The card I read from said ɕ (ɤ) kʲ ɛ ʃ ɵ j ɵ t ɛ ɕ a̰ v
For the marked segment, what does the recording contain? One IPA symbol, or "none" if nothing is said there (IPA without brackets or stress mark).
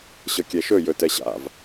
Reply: ɤ